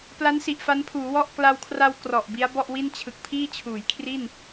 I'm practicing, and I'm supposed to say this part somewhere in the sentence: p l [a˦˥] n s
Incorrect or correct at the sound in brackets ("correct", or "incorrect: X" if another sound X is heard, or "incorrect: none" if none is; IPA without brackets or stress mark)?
correct